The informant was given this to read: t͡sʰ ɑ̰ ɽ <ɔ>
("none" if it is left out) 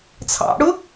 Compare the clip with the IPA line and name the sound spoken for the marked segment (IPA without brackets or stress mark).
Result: ʊ